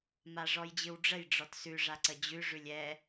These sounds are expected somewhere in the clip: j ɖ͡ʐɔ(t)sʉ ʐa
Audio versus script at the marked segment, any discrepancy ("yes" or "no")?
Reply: no